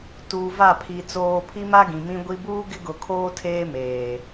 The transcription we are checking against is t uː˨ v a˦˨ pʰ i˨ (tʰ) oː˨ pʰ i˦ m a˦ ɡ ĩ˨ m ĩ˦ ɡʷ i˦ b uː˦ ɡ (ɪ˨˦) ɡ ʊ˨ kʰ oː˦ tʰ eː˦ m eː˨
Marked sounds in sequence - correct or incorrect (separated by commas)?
incorrect, incorrect